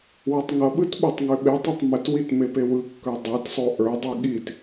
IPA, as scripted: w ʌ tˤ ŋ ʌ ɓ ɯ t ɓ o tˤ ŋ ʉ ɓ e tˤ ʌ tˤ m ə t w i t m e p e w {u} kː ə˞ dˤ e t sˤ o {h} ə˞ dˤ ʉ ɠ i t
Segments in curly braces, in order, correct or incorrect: incorrect, incorrect

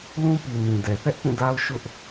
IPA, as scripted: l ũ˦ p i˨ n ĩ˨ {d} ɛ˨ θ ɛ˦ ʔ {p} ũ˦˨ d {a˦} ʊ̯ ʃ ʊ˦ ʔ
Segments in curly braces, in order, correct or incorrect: correct, correct, correct

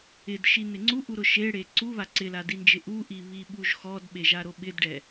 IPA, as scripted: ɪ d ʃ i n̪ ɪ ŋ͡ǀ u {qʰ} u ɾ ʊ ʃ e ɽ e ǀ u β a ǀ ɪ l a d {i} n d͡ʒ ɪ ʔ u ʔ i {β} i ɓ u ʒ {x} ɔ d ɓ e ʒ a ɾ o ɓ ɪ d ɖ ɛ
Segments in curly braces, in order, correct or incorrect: incorrect, correct, correct, correct

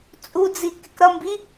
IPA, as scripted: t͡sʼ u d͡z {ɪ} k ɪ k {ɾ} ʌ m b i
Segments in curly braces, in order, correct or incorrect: incorrect, correct

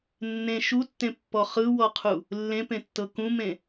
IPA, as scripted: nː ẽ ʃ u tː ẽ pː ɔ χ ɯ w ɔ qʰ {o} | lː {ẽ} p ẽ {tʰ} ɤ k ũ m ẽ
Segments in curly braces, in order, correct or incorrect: incorrect, correct, incorrect

